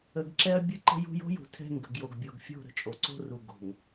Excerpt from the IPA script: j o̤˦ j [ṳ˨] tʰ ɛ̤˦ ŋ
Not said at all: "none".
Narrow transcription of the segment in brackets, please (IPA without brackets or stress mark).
ṳ˨